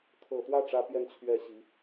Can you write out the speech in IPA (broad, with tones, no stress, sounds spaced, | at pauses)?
kʰ ɤ˨˩ t̪ w ä˥˩ ʈ͡ʂ ä˥ p j ɛ˥˧ n t͡ɕʰ ɥ ɛ˥˩ ɕ i˧˥